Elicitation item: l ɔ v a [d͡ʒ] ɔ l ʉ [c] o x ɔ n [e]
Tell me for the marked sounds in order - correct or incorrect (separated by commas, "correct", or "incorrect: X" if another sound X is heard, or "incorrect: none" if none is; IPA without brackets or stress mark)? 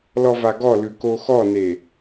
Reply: incorrect: ɡ, incorrect: k, correct